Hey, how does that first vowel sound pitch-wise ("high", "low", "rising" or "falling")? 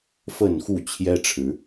falling